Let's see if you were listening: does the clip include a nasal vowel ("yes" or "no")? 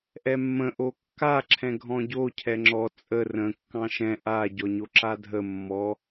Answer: yes